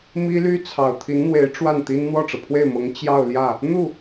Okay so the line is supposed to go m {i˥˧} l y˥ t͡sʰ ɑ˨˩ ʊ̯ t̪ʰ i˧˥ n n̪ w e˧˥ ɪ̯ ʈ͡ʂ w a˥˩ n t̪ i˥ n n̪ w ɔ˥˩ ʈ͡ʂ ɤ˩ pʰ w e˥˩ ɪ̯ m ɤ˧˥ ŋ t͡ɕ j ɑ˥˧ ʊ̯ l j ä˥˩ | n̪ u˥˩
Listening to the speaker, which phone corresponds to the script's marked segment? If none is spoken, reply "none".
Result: i˥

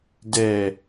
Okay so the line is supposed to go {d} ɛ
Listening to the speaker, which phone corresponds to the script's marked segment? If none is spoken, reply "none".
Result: d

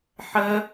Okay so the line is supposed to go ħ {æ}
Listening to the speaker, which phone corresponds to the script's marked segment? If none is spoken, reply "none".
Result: ɜ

